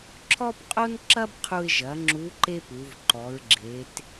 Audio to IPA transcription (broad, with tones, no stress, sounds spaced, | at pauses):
ǁʰ ɔ˥ p qʼ o˥ n ǁ ɐ˥ b qʰ u˧ ɪ̯ ʒ ɐ˩˧ ŋ͡ǁ u˧˥ ǃ e˥ p u˩˧ v ǃ ɔ˩˧ ɹ ɡ͡ǁ e˩˧ t